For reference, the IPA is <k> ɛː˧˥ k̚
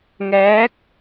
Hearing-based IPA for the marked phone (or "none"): ŋ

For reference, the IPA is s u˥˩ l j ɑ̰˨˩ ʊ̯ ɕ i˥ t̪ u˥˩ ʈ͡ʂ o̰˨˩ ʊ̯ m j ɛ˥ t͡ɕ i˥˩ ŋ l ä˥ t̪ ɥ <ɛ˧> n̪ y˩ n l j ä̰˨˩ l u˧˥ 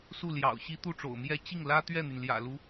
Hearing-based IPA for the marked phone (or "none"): ɛ˥˩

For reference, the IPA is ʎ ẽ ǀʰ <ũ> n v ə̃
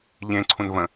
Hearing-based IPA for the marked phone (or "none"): ũ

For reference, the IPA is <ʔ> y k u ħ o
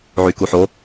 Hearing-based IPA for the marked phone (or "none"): ʕ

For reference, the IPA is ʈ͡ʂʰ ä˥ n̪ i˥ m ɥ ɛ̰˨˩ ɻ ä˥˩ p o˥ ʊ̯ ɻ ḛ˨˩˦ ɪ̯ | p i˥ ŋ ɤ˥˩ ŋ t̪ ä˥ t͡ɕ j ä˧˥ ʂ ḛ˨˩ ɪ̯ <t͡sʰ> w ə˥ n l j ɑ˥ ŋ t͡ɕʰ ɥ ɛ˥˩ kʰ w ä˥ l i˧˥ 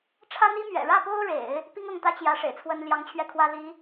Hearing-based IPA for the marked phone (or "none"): t͡sʰ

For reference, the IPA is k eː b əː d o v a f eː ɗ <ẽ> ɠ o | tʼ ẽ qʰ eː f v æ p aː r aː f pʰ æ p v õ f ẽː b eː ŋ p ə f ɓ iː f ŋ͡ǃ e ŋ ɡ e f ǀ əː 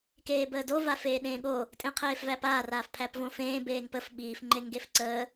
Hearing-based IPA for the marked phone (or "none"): ẽː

